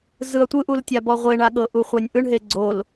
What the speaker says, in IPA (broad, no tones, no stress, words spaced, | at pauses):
zɯɐ̯tʷɯʔultʲa bɔʁʷeɳaɠɤ ʔuχʷanʲʔɯɳɦe ɡ͡ǀol